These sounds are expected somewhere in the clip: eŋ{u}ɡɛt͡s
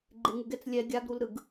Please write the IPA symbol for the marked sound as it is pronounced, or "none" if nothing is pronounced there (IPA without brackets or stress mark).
u